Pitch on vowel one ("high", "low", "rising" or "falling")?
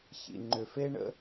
low